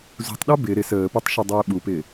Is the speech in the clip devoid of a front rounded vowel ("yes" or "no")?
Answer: yes